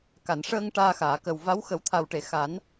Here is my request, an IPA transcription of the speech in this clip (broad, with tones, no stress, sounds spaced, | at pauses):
k a˨˩˨ n ʂ əː˧ ŋ ʈ aː˧ x aː˨˩˨ k ə˨˩ w v a˧˥ w x ə˨˩˦ w t̪ʰ a˨˩ w ʈ e˨˩˨ x a˨˩˦ n